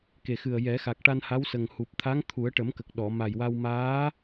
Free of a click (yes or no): yes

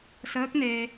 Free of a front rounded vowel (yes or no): yes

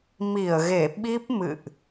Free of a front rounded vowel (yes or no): yes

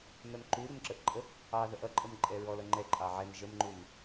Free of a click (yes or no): no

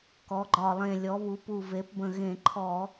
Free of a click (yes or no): no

